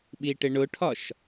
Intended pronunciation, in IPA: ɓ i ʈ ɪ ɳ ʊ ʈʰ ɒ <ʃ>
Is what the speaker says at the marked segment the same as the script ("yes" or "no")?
yes